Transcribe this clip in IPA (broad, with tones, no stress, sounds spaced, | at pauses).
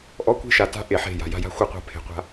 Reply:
ʔ ɔ˦ kʷ e̤˦ ʃ a˨ t a̤˦ ʔ e˨ ħ e̤˦˨ j a̤˨ j a̤˦ j a̤˦ xʷ ɯ˦˨ qʷ a̤˦ pʰ e̤˨ qʷ a̤˦